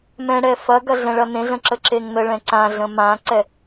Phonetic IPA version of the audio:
mɛ̃ɽɛ fɐɡɐ ɮɛ̃ɭɐnẽɮə̃ ǁəǁeŋnəɭɛ̃ ǀãɮə̃ mãǀɛ

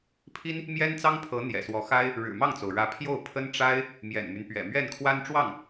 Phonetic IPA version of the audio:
pʰi˥n | mjɛ˥nt͡sɑ˥ŋpʰɤ˧˥ n̪jɛ̰˨˩swɔ˧˥xa˥ɪ̯ | ɻɻ̩˨˩mɑ˥˩ŋt͡so˩ʊ̯ɻä˧˥ pʰjo˥˩ʊ̯pʰə˥n ʈ͡ʂa˥ɪ̯ | mjɛ̰˨˩nmy˦npɥɛ̰˨˩ mɥɛ˥˩nkʰwa˥nʈ͡ʂwɑ˥˩ŋ

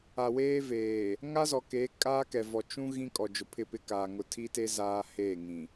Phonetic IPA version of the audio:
a˨weː˦veː˨ | ŋa˦zɔ˨ke˨˦ kʼaː˦kɛ˨vɔ˨ t͡ʃũ˦ ɣĩ˦kʼɔ˨d͡ʒʊ˨ pʰɪ˦˨pɪ˦kaː˨ ŋʊ˨tʰi˦te˦ zaː˦heː˦˨ŋĩ˨

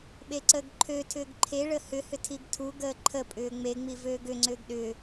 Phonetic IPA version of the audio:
ɓeǀəːɡǃʰøtʰʏːɡ ǃʰeɭə hʏhʏ tʰiɡtʰuɡəː ǃʰəpʼʏː ŋ͡meŋ͡mi vøːɡʏŋ͡ǀʏːɡ ɗʏː

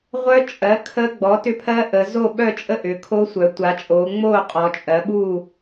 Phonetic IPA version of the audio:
ʁʷœ˦˥t͡ʃʼɜ˩˥ kʰə˦˥ɡ͡bɔ˩˥ tʏ˦˥pʰɜ˦˥ʔə˩˧ zo˥˨ɓœ˥˨t͡ʃʼə˥˨ ʔʏ˩˧kʰo˦˥sʷœ˩˧ tʷa˩˧t͡ʃʼoː˩˧ ŋ͡moː˥˨qʼɔ˩˧t͡ʃʼɜ˩˧ɓu˥˨

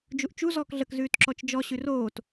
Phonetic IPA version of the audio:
d͡ʒuʔt͡ʃu zɔːkɮək zʉːtǁɔt͡ʃd͡ʒɔ ɕʉroːt

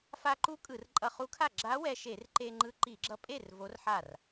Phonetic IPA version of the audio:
fa˧ǃu˧˥ kʼɯ˧˩˧rǃʼʌ˧χu˧˥kʰa˥˩ ɡ͡ǁa˧˥wɛ˧ʃe˧˩˧r ǃe˧ŋ͡ǃɯ˧ ǃi˧˩˧ɡ͡ǁʌ˧pʼe˥˩r vo˧˥rħa˥˩r

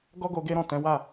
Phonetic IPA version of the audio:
ɡɔ˦ɡo˧ ɡe˦ɾɔ̃˦˨ tɛ̃˨˦wa˦˨

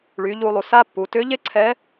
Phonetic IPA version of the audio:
ɭy˩˧ʎu˧lˠu˩ sa˥pːu˩˧ tʏ˧˥ʎe˥ ǀʰɛ˧˥

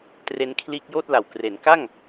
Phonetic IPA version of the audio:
tre˦˥nkʰliː˦˥k̚ joː˥˩t̚la˨˩wkre˩˦n ka˥˩ŋ

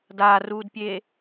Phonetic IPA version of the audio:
daːruːdpʲeː

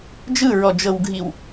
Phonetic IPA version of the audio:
d͡ʒɯɹɔd͡ʒɤwɡʱiw

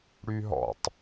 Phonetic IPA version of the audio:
ɽyɦɔ̰tˤ

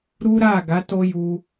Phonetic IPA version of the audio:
ɾu˦ɾa˦˨ɡa˨˦ to˦ju˧

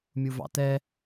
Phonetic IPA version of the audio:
mʲuvɑ̰tɛ

